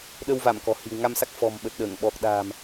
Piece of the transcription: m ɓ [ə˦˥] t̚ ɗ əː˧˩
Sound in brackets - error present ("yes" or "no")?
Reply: yes